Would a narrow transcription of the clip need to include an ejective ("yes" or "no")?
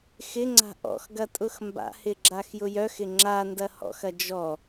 yes